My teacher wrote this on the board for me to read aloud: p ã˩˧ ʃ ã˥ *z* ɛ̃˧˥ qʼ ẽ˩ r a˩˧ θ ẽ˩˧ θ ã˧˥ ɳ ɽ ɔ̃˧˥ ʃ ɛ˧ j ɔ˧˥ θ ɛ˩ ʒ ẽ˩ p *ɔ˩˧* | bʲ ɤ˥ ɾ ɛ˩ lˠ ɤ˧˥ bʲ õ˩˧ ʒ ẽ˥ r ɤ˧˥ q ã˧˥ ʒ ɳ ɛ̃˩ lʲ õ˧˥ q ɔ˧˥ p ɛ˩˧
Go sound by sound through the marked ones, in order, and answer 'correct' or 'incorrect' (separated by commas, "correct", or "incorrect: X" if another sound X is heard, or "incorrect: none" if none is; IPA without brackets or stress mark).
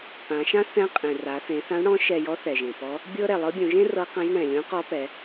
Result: incorrect: θ, incorrect: ɔ˧˥